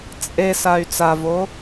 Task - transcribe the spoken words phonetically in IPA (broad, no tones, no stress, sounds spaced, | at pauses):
t͡sʼ e s a y̯ t͡s a v o